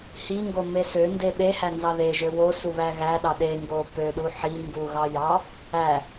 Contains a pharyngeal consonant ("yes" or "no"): yes